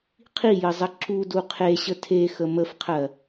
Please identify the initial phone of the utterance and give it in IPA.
qʰ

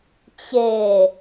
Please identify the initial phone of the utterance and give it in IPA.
t͡ɕ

